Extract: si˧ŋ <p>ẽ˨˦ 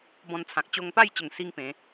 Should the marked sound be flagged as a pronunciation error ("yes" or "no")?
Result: no